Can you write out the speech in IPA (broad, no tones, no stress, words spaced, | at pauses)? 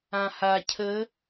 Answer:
ãha cʰə